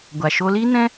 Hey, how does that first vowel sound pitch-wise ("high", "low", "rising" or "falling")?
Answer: low